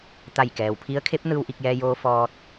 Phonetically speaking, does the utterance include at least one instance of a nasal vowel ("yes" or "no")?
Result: no